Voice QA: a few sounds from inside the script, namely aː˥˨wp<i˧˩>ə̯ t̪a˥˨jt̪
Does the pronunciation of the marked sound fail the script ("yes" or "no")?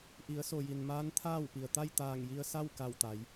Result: yes